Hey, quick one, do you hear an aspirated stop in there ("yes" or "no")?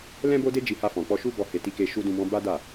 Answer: no